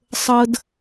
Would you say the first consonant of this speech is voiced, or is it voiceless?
voiceless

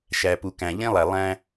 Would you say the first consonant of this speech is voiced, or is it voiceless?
voiceless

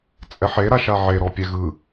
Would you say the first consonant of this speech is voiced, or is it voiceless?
voiceless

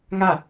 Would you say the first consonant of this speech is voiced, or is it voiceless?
voiced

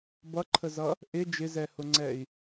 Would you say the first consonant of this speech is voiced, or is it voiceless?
voiced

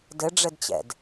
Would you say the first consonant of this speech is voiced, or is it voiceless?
voiced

